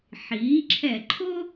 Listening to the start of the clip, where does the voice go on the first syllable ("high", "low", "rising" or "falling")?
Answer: rising